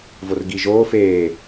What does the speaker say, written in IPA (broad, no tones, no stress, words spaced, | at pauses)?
vorɡiʒoː feː